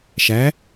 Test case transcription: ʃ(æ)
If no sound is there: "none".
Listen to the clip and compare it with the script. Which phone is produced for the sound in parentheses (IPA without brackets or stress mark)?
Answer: æ